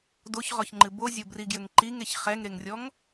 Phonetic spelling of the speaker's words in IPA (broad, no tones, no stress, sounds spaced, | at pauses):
d o ç ʁ ɔ ç ŋ͡ǃ ɨ b o zʲ o b r i ɡ j ɘ ŋ ǃ i ŋ e ç χ ɛ ŋ ɾ e ŋ rʲ ɔ ŋ